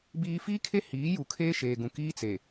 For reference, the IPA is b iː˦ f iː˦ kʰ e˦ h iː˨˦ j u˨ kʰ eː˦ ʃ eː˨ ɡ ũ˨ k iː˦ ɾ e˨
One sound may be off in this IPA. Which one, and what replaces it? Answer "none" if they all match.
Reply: ɾ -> t͡s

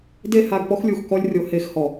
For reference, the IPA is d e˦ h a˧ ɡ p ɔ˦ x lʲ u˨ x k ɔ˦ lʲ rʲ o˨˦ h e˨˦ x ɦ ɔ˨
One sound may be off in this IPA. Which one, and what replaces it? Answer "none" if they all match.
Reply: ɦ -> h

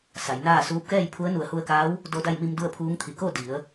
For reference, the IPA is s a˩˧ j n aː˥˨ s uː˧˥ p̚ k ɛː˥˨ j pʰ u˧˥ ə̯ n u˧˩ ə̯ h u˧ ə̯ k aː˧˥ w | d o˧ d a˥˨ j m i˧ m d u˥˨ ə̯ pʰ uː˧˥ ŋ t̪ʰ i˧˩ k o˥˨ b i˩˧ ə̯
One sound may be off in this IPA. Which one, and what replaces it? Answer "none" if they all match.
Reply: b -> d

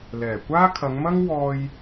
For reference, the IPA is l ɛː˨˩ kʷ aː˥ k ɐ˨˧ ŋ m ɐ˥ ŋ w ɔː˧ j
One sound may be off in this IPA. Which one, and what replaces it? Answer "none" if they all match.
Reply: k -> kʰ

